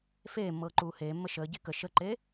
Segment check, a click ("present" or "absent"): present